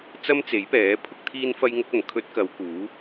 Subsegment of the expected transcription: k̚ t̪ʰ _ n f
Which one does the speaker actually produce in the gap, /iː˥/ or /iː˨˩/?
iː˥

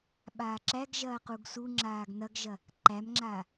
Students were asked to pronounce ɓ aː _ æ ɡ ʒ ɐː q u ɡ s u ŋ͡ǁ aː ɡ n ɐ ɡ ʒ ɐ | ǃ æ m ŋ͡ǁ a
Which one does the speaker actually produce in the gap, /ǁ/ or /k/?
ǁ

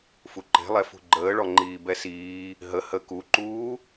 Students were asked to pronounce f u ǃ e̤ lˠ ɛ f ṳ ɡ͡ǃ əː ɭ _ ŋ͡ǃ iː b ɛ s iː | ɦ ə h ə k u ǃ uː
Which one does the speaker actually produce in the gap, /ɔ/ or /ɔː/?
ɔ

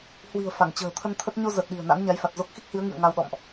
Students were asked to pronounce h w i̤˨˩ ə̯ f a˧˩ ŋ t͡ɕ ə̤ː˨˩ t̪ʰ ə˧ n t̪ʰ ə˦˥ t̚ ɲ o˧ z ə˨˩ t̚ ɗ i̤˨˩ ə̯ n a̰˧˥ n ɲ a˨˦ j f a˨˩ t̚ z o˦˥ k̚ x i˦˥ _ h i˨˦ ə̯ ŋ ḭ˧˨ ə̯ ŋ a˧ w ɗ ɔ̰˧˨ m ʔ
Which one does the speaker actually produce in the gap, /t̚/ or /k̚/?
k̚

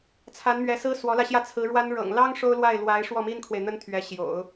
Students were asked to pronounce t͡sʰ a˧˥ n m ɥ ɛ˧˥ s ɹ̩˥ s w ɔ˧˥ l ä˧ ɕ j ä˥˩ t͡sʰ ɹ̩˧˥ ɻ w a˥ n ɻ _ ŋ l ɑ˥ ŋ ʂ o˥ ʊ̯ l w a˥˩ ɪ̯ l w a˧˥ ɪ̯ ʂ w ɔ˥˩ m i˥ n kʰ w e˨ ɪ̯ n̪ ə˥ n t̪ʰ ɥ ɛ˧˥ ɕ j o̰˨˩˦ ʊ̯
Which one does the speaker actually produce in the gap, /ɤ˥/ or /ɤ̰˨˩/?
ɤ̰˨˩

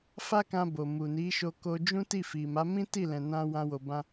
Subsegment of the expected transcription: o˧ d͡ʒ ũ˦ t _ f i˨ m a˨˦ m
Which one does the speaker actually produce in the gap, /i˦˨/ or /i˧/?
i˦˨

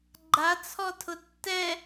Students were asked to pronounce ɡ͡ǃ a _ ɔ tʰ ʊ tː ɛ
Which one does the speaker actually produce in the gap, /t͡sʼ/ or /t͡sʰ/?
t͡sʰ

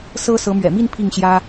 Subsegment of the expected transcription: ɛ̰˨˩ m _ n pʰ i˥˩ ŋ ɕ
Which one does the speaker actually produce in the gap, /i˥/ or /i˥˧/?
i˥˧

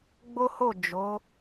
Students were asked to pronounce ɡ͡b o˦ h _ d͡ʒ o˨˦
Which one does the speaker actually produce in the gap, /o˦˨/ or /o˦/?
o˦˨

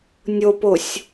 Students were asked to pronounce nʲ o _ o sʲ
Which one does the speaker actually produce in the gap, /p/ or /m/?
p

